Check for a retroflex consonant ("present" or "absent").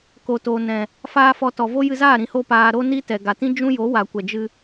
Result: absent